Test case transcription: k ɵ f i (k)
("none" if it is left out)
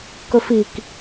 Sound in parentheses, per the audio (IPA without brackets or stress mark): k